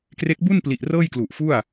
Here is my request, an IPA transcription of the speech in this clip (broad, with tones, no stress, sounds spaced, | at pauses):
k r e˦˥ k̚ b u˥˩ n p l i˨˩ ʔ r ɤː˥˩ j k l u˨˩ ʔ f u˥˩ a̯